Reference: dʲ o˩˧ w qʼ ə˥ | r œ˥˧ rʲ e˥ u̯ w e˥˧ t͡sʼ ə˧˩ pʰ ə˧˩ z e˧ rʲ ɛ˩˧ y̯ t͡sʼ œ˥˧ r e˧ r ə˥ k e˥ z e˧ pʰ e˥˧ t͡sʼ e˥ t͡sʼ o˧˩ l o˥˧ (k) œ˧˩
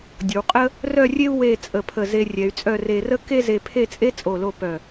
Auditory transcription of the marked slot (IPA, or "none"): p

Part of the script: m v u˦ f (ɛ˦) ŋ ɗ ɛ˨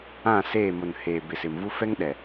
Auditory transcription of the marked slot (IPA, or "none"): ɛ˦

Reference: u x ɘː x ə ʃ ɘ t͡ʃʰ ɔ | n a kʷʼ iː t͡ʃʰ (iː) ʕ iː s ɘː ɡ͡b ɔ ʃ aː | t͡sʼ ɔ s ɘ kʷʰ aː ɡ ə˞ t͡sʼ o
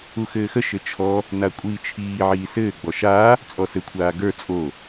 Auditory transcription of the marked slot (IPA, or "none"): iː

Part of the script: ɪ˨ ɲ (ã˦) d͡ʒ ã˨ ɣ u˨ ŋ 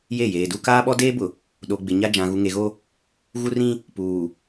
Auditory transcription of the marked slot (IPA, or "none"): a˦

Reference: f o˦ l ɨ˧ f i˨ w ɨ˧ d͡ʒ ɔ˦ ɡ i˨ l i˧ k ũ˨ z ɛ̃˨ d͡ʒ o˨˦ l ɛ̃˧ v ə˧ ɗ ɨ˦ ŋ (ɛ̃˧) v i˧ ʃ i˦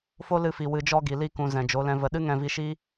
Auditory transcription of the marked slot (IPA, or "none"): ɛ̃˧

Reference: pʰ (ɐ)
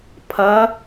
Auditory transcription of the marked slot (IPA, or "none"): ɐ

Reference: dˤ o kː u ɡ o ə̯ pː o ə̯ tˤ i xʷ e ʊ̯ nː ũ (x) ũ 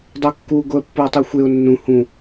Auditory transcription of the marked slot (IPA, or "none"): h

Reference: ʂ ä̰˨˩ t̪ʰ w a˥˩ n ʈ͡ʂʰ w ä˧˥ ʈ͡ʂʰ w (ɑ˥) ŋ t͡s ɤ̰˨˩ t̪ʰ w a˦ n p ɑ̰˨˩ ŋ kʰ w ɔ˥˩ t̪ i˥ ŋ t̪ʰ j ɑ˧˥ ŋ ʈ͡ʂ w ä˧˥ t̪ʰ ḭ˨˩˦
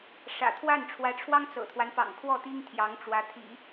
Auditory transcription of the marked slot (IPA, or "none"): ɑ˥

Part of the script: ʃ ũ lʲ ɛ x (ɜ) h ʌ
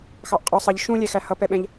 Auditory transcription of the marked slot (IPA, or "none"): æ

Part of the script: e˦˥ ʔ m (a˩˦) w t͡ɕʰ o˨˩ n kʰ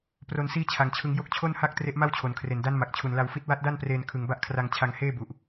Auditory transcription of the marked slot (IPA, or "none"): a˥˩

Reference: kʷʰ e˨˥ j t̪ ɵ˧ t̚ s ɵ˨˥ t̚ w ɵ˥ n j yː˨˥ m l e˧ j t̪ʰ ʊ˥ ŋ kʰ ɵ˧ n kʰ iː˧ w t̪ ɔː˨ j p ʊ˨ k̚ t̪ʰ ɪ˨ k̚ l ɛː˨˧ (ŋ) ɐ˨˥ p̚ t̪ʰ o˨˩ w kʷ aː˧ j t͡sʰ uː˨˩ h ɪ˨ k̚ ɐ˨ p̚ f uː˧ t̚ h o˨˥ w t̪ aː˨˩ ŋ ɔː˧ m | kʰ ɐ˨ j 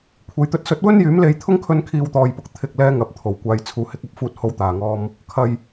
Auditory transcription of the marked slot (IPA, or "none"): ŋ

